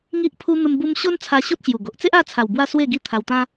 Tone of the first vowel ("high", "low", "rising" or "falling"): high